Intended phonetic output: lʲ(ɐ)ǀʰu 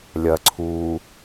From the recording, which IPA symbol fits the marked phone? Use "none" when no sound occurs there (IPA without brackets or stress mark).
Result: ɐ